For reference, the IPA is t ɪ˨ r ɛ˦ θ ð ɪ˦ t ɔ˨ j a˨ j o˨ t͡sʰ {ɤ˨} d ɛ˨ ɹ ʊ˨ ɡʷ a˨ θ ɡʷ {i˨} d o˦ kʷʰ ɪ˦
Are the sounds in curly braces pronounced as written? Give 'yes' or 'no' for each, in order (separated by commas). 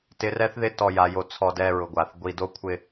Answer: no, yes